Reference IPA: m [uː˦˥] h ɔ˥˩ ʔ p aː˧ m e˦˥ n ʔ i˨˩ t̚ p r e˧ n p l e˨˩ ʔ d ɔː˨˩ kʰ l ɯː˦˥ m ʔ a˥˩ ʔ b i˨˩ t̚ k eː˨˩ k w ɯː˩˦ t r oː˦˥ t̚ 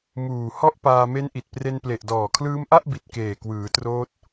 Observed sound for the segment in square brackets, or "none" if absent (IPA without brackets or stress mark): uː˨˩